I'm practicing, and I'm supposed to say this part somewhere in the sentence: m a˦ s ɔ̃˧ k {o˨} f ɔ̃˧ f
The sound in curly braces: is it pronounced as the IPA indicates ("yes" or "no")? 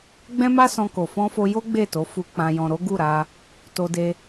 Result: yes